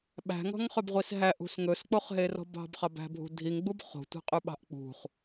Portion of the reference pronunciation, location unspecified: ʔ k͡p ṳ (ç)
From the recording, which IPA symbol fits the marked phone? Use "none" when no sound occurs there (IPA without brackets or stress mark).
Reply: χ